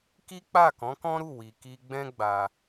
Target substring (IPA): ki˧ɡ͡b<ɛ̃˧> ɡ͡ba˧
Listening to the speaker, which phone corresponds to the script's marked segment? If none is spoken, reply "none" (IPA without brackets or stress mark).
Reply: ɛ̃˦